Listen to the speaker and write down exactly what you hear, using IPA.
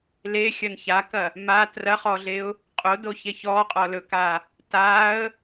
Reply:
l e xʲ ɐ n ç a k ɐ | m a t r ɐ χ ɔ ɮ e ʊ̯ | qʼ o d o ç e ç ɔ qʼ ɔ l ɵ k a | t a ə̯

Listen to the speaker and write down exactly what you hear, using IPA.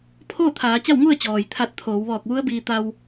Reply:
pʰ oː˥˨ t̪ʰ aː˩˧ t͡ɕ a˥˨ w ŋ u˥˨ ə̯ t͡ɕ ɔː˩ j t̪ʰ a˧ t̚ t̪ʰ oː˩˧ w ʋ ɔː˧˩ k̚ ʋ u˧˥ ə̯ b iː˧ t̪ a˧ w

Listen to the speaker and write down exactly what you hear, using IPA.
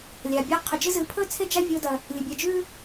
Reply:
lʲ a˨ bʲ a˧ qʰ ɵ˨ d͡ʒ ɨ˧ z ɨ˧ pʰ ɵ˦ t͡sʰ e˦ d͡ʒ a˦ vʲ o˦ d ɐ˧ | lʲ ɨ˨ bʲ ɐ˧ d͡ʒ ʉ˦

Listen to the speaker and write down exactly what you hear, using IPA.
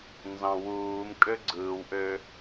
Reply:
n z ɑ̃ w uː m kʼ ø ɡ͡ǀ ɯː w ʔ ø

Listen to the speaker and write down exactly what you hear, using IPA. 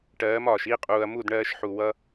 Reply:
ʈ ɜː˨˦ m ɒː˨ ʃ i˦˨ qʼ uː˨ ɐ̯ m u˦˨ d ɳ ɜː˧ ʃ ħ u˨ w ʌ˦

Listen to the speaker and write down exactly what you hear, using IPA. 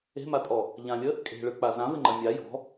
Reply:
e̤ m a tʼ ɔ | ʎ ã lʲ ə | kʼ e̤ ɭ ɯ k͡p a z ã v ɪ ŋ͡ǃ ɐ mʲ a j ɔ̤

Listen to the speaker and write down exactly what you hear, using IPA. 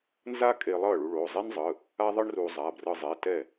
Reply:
n z a˥ kʼ e˧ lˠ ʌ˥˩ ɭ u˧ ɭ o˩˧˩ zˤ e˥ n zˤ ɯ˩˧˩ | a˥ ðˤ ɯ˥ ɳ r u˧ zˤ a˩˧˩ b r ɯ˧ zˤ e˩˧˩ t ɛ˥˩

